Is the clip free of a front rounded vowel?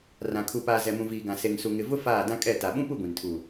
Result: yes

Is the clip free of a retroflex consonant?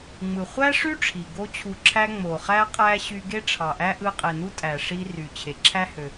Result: no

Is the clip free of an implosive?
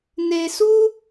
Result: yes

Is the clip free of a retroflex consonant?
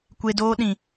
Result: yes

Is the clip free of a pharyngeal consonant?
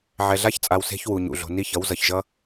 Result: no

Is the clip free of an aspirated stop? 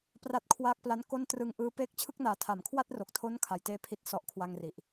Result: no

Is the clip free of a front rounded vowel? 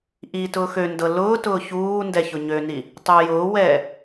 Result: no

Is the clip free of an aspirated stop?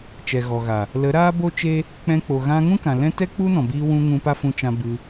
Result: yes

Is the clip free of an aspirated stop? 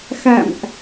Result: yes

